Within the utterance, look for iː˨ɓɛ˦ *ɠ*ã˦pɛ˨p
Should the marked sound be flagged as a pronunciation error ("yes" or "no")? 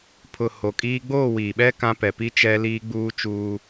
yes